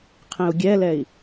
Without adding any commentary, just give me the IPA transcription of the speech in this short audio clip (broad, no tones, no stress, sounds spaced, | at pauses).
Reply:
qʰ ẽ u̯ ɡʲ ɛ l ɛ i̯